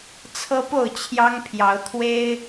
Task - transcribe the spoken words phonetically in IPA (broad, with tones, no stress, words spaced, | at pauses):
t͡sʰɤ˦po˥˨ʊ̯ t͡ɕʰjɑ˦ŋpʰjɑ˨˦ʊ̯ t̪ʰwe˦ɪ̯